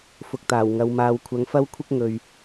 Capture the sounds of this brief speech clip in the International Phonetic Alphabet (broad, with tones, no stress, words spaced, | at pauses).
fʊ˧k̚t̪aː˨˩wŋɐ˨˧wmaː˧w kʷʰɐ˨˧ŋfɐ˥wkʷʰɪ˥k̚ ŋɵ˨ɥ